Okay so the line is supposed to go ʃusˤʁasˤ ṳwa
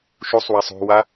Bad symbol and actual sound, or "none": ʁ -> w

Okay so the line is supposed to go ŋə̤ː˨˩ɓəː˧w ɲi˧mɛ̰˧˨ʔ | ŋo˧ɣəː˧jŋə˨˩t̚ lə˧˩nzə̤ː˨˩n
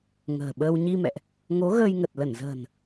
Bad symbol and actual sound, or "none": o˧ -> o˨˦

